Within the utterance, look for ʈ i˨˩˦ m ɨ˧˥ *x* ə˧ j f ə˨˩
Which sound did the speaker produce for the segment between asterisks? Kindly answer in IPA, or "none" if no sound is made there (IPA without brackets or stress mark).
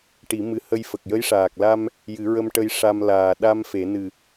h